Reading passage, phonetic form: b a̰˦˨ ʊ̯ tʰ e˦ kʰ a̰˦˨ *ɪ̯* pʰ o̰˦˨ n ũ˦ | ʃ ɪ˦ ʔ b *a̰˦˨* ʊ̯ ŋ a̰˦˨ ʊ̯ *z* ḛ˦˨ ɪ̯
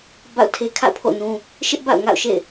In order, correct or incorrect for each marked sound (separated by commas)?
incorrect, correct, incorrect